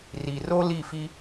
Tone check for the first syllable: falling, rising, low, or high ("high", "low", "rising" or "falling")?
low